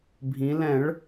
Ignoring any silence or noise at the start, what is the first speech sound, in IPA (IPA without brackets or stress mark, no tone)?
bʱ